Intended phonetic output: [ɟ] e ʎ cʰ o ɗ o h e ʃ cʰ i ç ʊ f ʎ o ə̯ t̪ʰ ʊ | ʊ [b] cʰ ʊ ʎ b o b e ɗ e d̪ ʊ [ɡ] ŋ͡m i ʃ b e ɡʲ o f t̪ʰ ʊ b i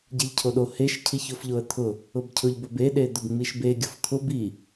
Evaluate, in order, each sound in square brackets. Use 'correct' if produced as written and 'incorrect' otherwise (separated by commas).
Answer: correct, correct, correct